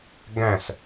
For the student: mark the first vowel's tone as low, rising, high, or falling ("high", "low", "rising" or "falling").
falling